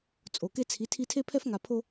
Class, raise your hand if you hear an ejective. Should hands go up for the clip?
yes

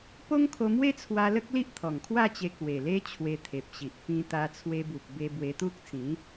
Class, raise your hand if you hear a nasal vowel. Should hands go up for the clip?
yes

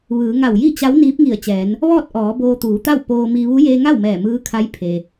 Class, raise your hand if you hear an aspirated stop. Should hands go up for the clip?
yes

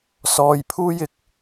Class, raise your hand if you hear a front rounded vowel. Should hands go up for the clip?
no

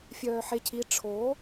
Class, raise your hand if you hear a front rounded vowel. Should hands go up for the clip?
yes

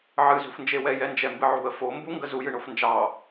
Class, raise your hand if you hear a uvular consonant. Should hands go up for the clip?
no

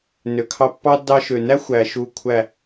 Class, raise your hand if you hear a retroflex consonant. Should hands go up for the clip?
no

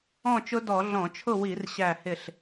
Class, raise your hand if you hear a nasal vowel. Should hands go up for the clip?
yes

